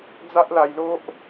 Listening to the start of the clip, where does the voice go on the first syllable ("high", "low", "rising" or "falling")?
high